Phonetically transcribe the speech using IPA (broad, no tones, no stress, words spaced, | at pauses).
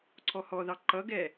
ǀʰɔhɔðɑ ǃʌɡɛ